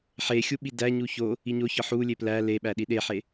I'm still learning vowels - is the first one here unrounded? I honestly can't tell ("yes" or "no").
yes